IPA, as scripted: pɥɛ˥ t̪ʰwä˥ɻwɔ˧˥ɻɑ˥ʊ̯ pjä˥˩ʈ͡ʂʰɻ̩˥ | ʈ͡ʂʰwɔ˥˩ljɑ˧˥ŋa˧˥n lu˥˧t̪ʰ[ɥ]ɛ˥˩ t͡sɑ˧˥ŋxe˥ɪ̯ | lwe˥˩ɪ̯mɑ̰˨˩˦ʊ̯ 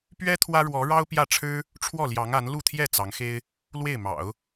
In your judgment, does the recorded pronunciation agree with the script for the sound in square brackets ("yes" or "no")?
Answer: no